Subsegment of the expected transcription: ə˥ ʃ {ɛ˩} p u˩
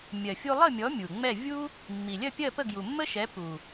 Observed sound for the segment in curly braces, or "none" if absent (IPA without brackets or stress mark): ɛ˩˥